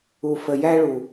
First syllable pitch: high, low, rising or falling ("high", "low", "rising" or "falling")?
low